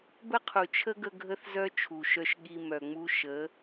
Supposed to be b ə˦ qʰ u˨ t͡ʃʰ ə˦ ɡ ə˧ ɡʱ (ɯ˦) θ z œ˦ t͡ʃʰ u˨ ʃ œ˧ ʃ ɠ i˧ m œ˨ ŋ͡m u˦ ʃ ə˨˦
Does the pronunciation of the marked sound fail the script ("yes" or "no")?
yes